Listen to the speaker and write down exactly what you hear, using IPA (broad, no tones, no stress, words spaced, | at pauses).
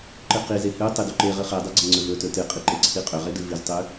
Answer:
ǃɨqize hʉ tˤeduǃeʁɨ χedˤɨ ɡ͡ǀɐŋ͡ǀɵvɵtɵ tɨqʼi ǃeǀʰiqʼɵʁe dɨviztˤʉ